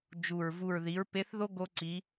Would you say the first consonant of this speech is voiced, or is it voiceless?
voiced